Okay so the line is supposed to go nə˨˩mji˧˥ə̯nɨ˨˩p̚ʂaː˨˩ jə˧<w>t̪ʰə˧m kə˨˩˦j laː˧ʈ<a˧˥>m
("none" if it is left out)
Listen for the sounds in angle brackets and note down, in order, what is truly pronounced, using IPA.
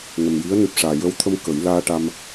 w, a˧

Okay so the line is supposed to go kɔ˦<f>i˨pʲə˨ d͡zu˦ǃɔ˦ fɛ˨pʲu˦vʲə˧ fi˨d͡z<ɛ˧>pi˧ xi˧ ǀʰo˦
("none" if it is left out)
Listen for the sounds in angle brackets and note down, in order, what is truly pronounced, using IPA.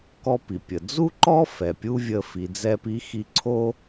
p, ɛ˧

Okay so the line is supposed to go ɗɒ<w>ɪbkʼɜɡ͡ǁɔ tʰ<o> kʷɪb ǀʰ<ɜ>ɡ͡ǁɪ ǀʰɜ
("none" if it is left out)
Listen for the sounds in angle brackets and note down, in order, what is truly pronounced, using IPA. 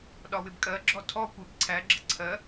w, ɔ, æ

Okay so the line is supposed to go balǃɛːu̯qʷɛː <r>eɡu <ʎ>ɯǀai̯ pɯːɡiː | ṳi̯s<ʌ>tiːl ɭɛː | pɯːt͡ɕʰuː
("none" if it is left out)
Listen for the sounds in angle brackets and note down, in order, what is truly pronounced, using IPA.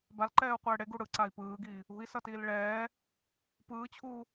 ɽ, ɽ, ʌ

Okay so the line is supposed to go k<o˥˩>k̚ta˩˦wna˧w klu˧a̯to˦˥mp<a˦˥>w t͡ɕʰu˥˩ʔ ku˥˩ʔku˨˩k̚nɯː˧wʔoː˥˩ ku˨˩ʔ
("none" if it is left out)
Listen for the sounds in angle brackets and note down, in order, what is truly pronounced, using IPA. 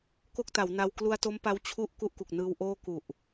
o˥˩, a˦˥

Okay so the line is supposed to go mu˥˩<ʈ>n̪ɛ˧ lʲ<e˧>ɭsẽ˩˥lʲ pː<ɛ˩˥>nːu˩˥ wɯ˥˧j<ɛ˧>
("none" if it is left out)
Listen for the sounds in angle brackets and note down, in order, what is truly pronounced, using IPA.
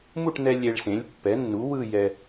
ʈ, e˧, ɛ˩˥, ɛ˧

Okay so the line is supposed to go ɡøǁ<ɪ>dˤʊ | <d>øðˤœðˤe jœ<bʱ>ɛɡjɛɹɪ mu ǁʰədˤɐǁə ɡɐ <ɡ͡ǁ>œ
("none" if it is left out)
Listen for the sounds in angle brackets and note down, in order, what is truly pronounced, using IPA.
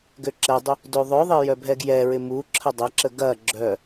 ɛ, d, bʱ, ɡ͡ǁ

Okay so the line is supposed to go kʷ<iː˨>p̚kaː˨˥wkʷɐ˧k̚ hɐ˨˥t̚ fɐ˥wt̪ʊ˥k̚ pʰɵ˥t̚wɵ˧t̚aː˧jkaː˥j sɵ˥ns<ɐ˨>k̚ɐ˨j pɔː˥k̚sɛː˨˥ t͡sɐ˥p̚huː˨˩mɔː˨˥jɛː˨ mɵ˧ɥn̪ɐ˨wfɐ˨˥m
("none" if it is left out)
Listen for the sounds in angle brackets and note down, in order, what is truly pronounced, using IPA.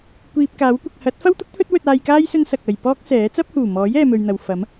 iː˧, ɐ˨

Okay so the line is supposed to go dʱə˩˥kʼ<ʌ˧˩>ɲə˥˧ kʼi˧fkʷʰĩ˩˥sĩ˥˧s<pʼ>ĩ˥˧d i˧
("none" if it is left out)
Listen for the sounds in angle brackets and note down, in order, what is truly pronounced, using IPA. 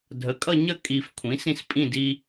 ʌ˥˧, pʼ

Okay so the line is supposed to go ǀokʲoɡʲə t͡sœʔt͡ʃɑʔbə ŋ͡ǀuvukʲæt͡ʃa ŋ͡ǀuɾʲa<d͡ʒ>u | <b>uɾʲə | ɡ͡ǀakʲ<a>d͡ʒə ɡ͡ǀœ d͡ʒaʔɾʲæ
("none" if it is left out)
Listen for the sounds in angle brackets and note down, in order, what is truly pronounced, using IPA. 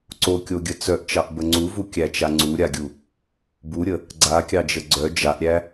ɡʲ, b, ɑ

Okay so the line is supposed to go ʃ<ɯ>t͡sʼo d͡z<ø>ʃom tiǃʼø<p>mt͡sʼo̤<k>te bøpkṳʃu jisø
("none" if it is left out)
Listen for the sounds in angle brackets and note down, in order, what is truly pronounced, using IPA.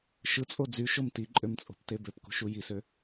ɯ, y, none, p

